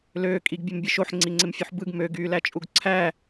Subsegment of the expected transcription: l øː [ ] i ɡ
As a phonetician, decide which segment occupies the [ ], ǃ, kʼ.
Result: kʼ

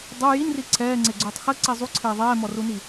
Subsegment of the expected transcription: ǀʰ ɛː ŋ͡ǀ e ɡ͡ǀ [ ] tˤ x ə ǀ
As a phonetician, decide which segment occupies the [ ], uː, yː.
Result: uː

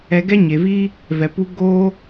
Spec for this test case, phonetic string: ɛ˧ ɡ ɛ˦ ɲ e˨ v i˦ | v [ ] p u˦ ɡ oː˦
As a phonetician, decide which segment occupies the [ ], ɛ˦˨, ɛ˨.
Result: ɛ˨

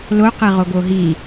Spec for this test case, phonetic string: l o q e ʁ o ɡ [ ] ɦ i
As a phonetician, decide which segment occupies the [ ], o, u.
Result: o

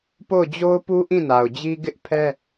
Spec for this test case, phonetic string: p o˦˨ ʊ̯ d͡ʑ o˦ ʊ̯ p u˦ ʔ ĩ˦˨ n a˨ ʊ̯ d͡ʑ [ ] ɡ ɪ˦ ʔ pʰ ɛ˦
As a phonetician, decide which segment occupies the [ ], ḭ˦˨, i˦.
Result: i˦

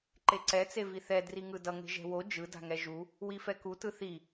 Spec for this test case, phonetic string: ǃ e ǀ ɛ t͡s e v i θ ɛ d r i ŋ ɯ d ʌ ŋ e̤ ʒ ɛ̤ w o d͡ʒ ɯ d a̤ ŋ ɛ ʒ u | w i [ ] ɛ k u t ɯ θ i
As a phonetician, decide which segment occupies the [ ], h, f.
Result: f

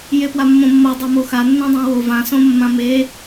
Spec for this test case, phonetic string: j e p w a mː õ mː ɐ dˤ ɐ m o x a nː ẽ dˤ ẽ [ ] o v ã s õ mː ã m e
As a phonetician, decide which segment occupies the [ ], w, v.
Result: w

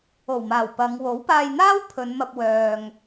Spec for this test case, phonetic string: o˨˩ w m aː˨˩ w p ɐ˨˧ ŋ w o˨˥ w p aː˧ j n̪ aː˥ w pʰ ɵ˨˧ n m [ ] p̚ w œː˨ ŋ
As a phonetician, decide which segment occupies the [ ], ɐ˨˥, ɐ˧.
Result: ɐ˧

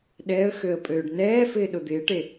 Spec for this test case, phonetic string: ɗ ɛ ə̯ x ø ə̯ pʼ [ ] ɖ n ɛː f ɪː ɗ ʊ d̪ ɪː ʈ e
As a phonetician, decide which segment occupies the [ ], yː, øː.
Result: øː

